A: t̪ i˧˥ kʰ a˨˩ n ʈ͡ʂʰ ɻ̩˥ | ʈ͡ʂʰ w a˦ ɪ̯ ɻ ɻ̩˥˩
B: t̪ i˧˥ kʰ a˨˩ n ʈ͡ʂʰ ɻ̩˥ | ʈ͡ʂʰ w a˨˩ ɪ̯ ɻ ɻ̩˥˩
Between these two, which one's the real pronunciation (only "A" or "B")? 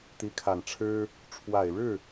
B